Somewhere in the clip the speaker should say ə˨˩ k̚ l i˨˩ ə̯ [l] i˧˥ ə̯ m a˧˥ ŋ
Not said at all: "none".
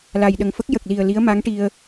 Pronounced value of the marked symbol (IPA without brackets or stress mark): l